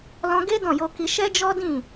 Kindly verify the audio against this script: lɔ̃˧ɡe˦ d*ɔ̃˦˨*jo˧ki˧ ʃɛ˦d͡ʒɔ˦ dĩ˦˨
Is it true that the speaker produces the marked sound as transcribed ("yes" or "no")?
yes